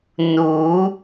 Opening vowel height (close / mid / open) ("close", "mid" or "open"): close